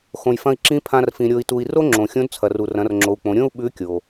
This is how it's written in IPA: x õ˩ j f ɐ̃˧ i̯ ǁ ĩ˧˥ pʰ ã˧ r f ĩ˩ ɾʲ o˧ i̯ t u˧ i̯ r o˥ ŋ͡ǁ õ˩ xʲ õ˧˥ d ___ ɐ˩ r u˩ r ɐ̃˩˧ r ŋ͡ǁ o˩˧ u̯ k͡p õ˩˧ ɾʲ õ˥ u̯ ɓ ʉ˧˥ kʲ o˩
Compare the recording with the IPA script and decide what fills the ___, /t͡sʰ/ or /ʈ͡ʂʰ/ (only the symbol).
t͡sʰ